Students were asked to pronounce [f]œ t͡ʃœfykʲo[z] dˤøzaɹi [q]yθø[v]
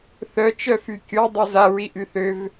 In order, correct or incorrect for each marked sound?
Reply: incorrect, incorrect, incorrect, correct

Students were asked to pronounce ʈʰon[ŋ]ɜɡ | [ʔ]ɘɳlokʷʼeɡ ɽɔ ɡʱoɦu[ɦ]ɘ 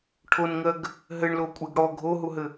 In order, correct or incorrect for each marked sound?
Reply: correct, incorrect, correct

